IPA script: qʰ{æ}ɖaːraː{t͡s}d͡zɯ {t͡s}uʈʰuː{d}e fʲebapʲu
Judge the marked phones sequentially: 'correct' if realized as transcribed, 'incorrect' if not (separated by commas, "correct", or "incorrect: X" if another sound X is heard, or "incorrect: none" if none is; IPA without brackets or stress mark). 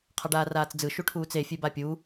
incorrect: a, correct, incorrect: ʃ, incorrect: t͡s